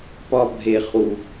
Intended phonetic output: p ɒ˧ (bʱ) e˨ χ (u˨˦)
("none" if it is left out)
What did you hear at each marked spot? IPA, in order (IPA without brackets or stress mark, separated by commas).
bʱ, u˨